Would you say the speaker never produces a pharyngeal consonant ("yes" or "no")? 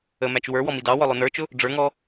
yes